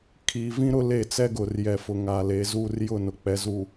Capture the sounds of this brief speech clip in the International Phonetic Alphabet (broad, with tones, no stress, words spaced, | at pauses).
kʰiː˨vĩ˦ ɾʊ˦le˦˨ t͡sɛ˦ɡʊ˨rjɛ˨fʊ˨ ŋaː˨le˨˦zuː˦r jʊ˦˨nʊ˨ k͡pɛ˨˦zu˨